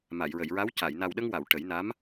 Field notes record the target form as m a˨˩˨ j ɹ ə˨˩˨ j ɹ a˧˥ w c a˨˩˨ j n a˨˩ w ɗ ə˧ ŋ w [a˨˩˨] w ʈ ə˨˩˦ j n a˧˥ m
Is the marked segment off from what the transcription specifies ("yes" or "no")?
no